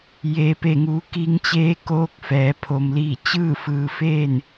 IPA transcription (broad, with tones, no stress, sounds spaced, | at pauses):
j eː˩ p e˧˩ ŋ uː˩˧ k i˧ ŋ t͡ɕ eː˧˥ k oː˧˥ k̚ f ɛː˩˧ pʰ o˧ m l iː˥˨ t͡ɕ ɯː˥˨ f ɯː˧ f eː˥˨ n